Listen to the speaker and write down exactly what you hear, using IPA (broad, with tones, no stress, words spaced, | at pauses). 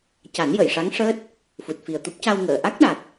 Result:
ca˨˩˦njə˨˩˨jʂa˧˥ŋʂəː˦˥t̚ | fu˨˩t̚fi˨˩ə̯t̪u˦˥p̚ ca˧wŋəː˨˩˨ ʔa˦˥k̚ɗa˨˩t̚